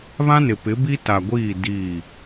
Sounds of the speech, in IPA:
β ã˦ n ɪ˨ p ɪ˨˦ b i˦ t a˨ ɡʷ iː˦˨ d i˦˨

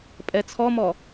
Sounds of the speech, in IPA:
pʼ ɛ t͡sʰ ɔ m ɔ

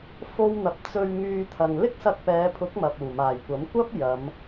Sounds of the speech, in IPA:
f o˥ w n̪ ɐ˧ p̚ t͡s ɵ˧ ɥ ŋ yː˧ t̪ʰ ɐ˨ ŋ l ɪ˥ k̚ s ɐ˧ k̚ p ɛː˨˧ pʰ ʊ˨˥ k̚ m ɐ˨ p̚ uː˨˩ m aː˨˩ j kʷ ɐ˨˥ m kʷ ɐ˥ p̚ j ɐ˨˧ m

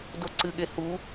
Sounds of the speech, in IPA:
d o ǀ ɨ ɠ e h u

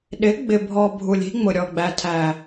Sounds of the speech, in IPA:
ɗ ɪ˨˦ ɡ͡b ɪ˨ bʱ ɔ˨ bʱ u˨ lʲ i̤˦ ŋ͡m ʊ˨ ɾʲ ɔ˨ ɡ͡b æ˨ tʰ æ˨

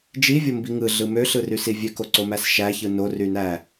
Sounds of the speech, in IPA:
d͡ʒ i vʲ o m b i ŋ ɯ ɮ ɯ m ø ɬ ɯ r y s i vʲ ø k o ǀ o m æ s ʃ æ ç ɯ n o r y n æ

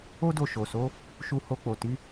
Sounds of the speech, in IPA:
o˦ d o˦˨ ʃ o˨ s o˨˦ | ʃ u˧ h o˧ k͡p o˨ t i˨˦

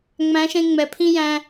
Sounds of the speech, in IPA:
ŋ͡m æ̃˨˦ ʃ ẽ˧ ŋ͡m ɛ˨ pʰ ĩ˦ j æ̃˧

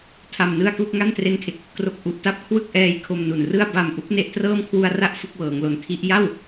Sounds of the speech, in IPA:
tʰ a˧ m n ɯ˥˩ a̯ k l u˥˩ k̚ ŋ a˥˩ n t r e˦˥ n kʰ e˨˩ k̚ | k r o˦˥ k̚ ʔ u˨˩ ʔ t a˦˥ p̚ kʰ w ɯ˥˩ k̚ ʔ ɛː˧ j kʰ o˧ m n u˨˩ n r ɯ˥˩ a̯ b a˨˩ m ʔ u˦˥ k̚ n e˥˩ ʔ t r ɤː˥˩ m kʰ w u˧ a̯ r a˥˩ ʔ f ɯ˥˩ k̚ w ɤː˩˦ ŋ l o˨˩ n kʰ i˦˥ ʔ j a˥˩ w

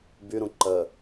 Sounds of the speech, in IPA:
b y ɾ ũ ǃ ə

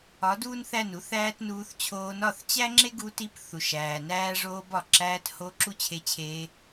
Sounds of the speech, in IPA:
ɒ˨˦ d uː˦ n θ æ˦˨ n u˧ θ æː˦ t n uː˧ θ t͡ɕʰ oː˧ n ɒ˦˨ θ t͡ɕ æ˦ ŋ͡ǁ e˦ ɡ u˧ t i˧ p θ u˨ ʃ æː˨ n æː˧ ʐ oː˧ b ɒ˨ ǁ æː˧ t h o˧ ǁ u˦ t͡ɕʰ e˧ t͡ɕʰ eː˧

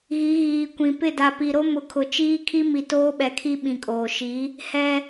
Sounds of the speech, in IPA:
ɣ i˨˦ ɣ iː˨ kʷ ĩ˨ p ɪ˦˨ d a˨ p i˨ ɾ o˦ m ʊ˨ kʰ ʊ˨ t͡ʃ iː˦ kʰ i˦ m i˨ t oː˦ ɓ ɛ˨ kʰ i˦ ɓ ĩ˨ kʼ oː˨ ʃ i˨˦ | h ɛ˦

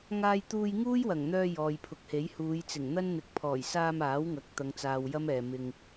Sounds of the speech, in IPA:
ŋ aː˧ j t̪ uː˧ j ŋ uː˥ j w ɐ˨˩ ŋ n̪ œː˧ j ɔː˨ j pʰ ʊ˨ k̚ h e˨˥ j h uː˨˧ j t͡s ɪ˨˩ ŋ n̪ ɐ˥ n n̪ ɪ˨ k̚ pʰ ɔː˨˩ j s aː˧ m aː˨˥ w ŋ ɐ˨˥ k̚ t̪ ɐ˨˧ ŋ t͡s aː˨ w j ɐ˥ m ɛː˨ m ɪ˧ ŋ

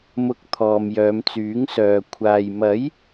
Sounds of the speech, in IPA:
m ʊ˧ k̚ t̪ʰ ɔː˨ m j œː˨˧ m t͡s yː˨˥ ŋ s œː˨ kʷʰ aː˨ j m ɐ˨˥ j

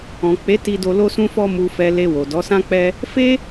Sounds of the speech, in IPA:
ɔ̃˨ k͡p e˨˦ t i˧ d o˧ l o˧ s ũ˧ f ɔ˧ m u˨ f ɛ˨ l e˧ w o˨ d ɔ˨˦ s ã˦ k͡p ɛ˦ | f e˦

